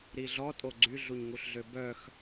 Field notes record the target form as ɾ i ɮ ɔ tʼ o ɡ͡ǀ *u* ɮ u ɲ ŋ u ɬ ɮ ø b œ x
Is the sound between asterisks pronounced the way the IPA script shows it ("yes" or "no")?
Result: no